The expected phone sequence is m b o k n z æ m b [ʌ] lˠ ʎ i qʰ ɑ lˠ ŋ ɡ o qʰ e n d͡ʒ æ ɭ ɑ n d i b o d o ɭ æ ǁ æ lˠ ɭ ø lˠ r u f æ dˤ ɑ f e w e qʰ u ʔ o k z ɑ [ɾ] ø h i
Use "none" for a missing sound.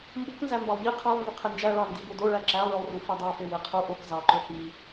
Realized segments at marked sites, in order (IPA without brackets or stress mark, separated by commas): ɑ, ǃ